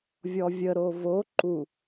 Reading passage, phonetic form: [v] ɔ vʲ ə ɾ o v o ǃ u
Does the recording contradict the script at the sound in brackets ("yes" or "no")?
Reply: yes